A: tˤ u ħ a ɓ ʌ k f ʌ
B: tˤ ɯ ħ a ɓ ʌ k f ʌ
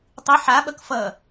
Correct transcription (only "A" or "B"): B